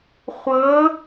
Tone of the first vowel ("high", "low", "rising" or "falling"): rising